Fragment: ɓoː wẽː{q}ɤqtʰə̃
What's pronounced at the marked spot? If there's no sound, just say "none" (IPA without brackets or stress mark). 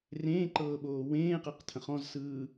q